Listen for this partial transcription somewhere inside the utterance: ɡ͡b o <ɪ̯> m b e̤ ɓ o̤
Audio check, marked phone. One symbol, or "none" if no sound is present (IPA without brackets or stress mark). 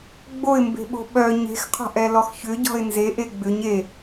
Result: ɪ̯